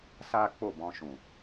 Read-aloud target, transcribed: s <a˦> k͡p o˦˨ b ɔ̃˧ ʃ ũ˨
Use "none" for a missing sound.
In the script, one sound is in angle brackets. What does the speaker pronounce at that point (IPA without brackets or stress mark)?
a˦